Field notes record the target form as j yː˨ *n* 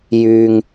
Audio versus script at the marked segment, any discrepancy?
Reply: yes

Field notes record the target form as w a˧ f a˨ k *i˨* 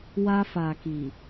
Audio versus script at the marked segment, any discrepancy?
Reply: no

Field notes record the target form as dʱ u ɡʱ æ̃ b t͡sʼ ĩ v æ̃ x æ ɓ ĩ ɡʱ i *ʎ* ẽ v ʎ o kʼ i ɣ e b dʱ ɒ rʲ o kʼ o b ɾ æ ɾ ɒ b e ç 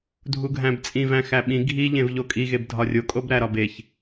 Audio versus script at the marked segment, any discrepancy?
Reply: no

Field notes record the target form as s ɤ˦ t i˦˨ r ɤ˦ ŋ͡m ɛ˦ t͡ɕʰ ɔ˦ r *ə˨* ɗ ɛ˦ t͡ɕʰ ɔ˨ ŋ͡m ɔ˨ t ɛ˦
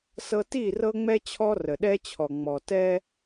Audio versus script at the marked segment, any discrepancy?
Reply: no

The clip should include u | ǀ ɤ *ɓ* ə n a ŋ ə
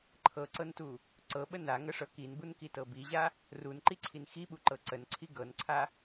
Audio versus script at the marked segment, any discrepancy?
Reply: no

